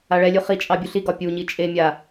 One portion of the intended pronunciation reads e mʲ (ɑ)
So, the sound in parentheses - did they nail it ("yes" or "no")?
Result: no